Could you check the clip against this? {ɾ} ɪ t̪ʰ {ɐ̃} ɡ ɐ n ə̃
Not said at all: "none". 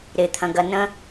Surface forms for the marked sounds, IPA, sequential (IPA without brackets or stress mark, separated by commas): ɾ, ɐ̃